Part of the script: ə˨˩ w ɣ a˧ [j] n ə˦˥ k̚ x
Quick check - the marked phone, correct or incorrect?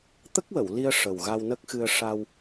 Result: incorrect